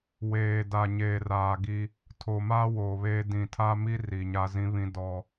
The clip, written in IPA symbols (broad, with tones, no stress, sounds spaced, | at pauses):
w eː˨ d a˨ ɲ eː˨ r aː˨ ɡ i˦ | tʰ o˨ m aː˦ w o˨ β eː˦ d ĩ˨ tʰ aː˦ m i˦ r i˨ ɲ a˦ z ĩ˦ β ĩ˦ d ɔ˦